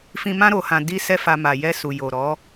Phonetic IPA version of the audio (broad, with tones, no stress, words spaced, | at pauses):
fĩ˧mã˦ ɾo˧hã˧ di˧ sɛ˦fa˧ ma˨ jɛ˧su˨ jo˨ ɾɔ˨˦